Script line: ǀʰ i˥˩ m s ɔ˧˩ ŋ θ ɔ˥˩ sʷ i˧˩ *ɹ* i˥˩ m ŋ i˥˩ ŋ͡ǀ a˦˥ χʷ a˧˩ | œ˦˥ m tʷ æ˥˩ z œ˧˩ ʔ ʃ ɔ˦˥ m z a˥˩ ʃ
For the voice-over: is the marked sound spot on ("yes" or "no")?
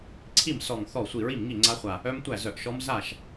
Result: yes